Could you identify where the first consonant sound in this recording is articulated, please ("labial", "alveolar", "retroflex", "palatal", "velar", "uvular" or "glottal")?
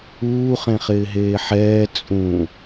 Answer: uvular